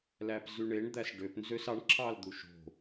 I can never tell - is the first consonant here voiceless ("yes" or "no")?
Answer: no